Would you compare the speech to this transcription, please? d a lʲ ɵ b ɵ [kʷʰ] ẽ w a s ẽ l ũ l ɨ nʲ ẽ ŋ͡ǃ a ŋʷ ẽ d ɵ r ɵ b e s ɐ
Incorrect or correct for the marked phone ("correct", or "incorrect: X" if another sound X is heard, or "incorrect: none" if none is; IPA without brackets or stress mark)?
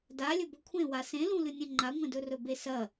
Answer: correct